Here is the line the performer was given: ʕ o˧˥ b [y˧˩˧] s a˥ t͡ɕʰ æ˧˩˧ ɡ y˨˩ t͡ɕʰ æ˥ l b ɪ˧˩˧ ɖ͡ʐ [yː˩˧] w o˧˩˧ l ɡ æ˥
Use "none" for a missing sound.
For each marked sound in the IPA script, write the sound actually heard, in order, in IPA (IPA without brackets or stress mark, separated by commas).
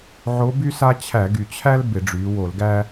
y˥, yː˩˧